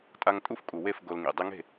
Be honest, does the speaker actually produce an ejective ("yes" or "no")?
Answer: yes